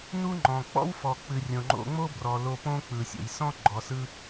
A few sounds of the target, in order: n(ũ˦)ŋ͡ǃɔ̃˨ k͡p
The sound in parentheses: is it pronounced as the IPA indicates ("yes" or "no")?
no